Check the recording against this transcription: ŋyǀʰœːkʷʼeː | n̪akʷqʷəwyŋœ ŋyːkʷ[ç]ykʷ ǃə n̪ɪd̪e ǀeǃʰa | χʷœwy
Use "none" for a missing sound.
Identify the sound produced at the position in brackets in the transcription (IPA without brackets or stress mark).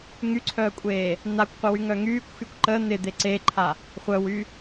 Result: x